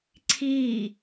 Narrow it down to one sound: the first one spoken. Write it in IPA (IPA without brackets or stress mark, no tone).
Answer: ǀʰ